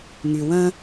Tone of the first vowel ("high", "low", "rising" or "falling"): low